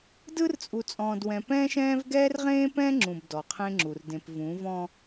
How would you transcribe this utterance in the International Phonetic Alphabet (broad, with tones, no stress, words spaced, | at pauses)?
dɯ˦rt͡sʼu˨t͡sʼɔ̃ː˨dwɛ̃˨ pɛ̃ː˦ʃɛ̃ː˦v ɡɛː˦rʁẽː˦pɛ̃ː˦ŋ͡ǁũ˨b dɔ˨qʰẽ˦ŋ͡ǁu˨r dẽ˨pvũ˨˦vɔ̃˦